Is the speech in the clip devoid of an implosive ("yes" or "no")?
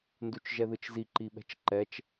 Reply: no